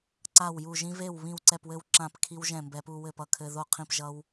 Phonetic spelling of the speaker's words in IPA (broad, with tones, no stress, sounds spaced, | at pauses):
ǀ a˥˩ w j u˥˩ ʒ ĩ˦ v e˥˩ w β ĩ˥˩ w ǀ ɛ˥˩ p w ɘ˥˩ w ǁ ã˥˩ p kʰ i˦ w ʒ ɛ̃˥˩ m b ɛ˦ p u˦ w ɘ˥˩ p ʌ˦ kʰ ɘ˦ ð o˥˩ qʰ ĩ˥˩ p ʒ ʌ˦ w